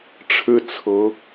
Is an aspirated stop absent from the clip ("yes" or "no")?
no